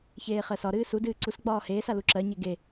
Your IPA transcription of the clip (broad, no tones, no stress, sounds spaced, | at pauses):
ç eː χ ɜ s ɒ ɾ ɨː s u d ɨː ǀ u s ɡ͡b ɒː h eː s a l u ǁ ɜ ɲ e ɡ e